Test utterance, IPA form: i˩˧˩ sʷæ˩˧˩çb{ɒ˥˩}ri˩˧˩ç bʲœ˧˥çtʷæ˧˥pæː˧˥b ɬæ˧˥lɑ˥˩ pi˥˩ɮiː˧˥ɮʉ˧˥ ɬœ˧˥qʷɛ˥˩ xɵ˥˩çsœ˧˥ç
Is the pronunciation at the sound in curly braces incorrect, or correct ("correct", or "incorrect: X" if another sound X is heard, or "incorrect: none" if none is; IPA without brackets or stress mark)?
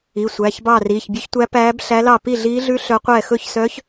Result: incorrect: ɑ˥˩